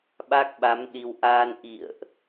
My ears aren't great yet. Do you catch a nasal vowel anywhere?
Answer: no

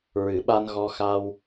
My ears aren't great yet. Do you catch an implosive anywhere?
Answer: yes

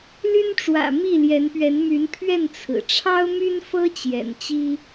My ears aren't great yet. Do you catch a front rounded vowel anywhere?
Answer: yes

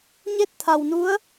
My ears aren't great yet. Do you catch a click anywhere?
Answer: no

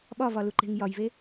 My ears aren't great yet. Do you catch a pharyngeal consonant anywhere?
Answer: no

